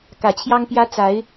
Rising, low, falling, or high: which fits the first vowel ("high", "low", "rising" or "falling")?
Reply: low